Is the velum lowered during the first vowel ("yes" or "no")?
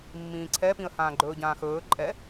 yes